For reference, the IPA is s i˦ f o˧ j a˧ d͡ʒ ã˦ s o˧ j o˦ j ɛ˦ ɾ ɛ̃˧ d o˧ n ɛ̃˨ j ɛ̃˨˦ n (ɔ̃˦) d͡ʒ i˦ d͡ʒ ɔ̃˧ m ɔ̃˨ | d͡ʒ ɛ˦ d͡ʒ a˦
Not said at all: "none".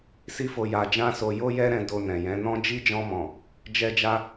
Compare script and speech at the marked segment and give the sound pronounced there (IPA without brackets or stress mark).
ɔ̃˦